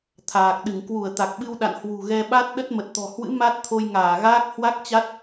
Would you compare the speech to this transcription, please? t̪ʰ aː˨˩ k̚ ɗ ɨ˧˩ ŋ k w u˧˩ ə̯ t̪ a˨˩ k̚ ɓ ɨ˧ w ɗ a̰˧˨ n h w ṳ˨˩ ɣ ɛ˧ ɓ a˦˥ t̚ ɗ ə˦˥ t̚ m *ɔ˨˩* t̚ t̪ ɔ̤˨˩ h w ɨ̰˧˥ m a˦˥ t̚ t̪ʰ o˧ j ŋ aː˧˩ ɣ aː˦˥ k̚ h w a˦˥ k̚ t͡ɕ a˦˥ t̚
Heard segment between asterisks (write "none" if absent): ə˨˩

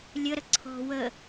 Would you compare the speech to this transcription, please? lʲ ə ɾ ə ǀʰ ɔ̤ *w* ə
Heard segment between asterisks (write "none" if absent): w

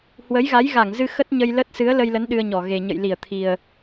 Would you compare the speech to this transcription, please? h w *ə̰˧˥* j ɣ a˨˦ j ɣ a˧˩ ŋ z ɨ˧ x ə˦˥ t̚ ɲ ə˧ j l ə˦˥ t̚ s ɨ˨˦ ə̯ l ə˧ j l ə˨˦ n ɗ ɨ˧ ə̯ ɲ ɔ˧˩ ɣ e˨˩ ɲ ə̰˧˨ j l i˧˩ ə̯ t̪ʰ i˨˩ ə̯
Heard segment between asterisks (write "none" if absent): ə˨˦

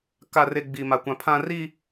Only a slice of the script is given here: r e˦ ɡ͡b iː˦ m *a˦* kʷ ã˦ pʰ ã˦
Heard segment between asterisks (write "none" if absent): a˦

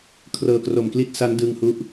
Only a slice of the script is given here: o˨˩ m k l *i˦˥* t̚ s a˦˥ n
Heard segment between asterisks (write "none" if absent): i˦˥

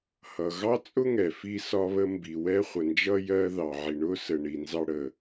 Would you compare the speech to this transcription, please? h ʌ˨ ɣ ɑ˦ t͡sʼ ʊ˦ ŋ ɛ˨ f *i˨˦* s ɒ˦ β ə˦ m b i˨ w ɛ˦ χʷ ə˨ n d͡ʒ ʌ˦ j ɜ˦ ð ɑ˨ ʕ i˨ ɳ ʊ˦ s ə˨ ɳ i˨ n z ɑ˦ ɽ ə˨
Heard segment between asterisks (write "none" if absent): i˦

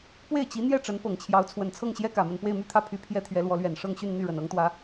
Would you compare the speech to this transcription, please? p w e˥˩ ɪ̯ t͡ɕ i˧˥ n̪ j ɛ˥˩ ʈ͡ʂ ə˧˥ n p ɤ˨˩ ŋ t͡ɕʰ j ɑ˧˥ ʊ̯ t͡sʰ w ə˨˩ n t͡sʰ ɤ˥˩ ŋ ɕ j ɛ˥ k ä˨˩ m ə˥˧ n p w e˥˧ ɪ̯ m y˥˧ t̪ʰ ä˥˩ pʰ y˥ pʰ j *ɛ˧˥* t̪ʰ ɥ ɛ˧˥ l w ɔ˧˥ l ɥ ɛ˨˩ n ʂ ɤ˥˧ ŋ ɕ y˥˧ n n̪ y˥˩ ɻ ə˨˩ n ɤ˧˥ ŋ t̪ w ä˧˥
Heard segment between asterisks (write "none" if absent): ɛ˥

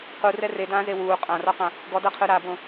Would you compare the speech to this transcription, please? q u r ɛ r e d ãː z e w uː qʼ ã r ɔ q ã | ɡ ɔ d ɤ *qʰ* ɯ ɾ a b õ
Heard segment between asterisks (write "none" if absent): qʰ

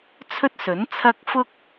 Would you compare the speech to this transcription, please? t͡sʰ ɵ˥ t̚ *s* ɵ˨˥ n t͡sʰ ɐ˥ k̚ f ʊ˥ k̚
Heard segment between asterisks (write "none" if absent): s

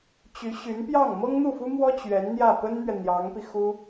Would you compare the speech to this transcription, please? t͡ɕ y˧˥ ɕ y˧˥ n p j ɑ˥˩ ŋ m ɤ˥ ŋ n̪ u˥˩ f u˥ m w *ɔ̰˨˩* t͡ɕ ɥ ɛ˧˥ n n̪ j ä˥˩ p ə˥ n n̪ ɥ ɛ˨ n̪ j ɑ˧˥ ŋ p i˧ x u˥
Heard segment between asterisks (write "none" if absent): ɔ˥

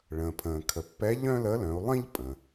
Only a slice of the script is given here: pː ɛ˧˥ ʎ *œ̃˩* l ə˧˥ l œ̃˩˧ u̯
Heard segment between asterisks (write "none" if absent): œ̃˥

